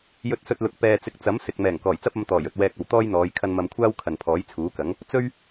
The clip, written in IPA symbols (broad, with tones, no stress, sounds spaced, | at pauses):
j ɵ˧ t̚ s ɵ˧ t̚ l ʊ˨ k̚ p ɛː˧ t͡s ɪ˧ k̚ t͡s ɐ˨˥ m s ɪ˨ k̚ m ɛː˨˩ ŋ k ɔː˨˩ j t͡s ɐ˥ p̚ ɐ˨˧ m t̪ ɔː˨˩ j ɵ˨ t̚ w ɛː˧ k̚ ɐ˨ w t̪ ɔː˥ j n̪ ɔː˨˧ j kʰ ɐ˧ n m ɐ˨ m kʷʰ aː˥ w kʰ ɐ˨ n pʰ ɔː˨˥ j t͡sʰ uː˨˥ k ɐ˨˥ ŋ | t͡s ɵ˥ ɥ